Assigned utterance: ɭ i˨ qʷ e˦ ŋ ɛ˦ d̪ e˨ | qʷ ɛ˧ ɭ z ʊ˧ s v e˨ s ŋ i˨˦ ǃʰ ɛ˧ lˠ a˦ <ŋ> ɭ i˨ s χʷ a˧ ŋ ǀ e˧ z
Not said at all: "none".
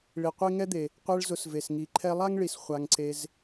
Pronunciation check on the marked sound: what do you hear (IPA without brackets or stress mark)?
ŋ